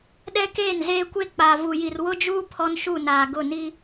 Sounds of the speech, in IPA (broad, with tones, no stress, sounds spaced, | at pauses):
ɗ ɛ˦ k eː˦˨ n z eː˦ kʷ e˦ k͡p aː˨ v u˨ j i˨ r w ʊ˦ d͡ʒ uː˦ pʰ ɔ˦ n ʃ u˦˨ n aː˨ ɡ ʊ˦˨ n i˦